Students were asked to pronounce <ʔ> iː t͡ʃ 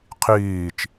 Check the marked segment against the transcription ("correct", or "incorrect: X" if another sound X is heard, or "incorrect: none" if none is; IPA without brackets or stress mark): incorrect: qʰ